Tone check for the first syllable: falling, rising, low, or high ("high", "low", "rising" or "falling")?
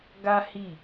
high